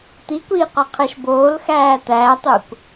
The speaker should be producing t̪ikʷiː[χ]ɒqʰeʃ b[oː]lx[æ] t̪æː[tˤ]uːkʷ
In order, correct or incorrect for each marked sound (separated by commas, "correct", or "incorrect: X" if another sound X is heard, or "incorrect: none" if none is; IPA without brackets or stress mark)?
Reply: incorrect: q, correct, incorrect: æː, correct